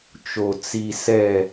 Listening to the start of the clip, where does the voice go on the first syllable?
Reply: low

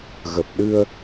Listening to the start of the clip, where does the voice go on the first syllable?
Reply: low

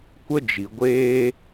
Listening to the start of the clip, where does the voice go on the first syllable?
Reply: high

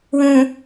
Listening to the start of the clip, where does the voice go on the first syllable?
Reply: low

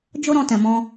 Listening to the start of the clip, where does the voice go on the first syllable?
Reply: high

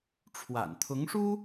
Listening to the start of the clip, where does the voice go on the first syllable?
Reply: low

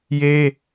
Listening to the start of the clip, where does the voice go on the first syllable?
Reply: high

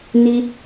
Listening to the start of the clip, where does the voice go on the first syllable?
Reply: high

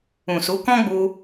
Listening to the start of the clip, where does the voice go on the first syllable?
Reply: low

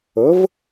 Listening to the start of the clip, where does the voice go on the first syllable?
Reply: rising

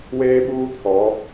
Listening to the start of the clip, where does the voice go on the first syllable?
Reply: high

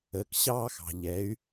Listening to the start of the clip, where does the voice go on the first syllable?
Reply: low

